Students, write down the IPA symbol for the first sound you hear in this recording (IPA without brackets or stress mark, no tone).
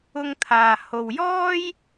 ʊ